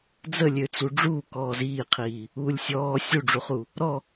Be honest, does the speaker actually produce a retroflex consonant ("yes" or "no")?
yes